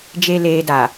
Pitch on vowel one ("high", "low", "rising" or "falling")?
low